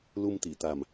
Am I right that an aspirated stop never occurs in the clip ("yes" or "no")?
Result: yes